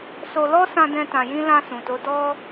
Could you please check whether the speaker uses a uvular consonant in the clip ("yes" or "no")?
no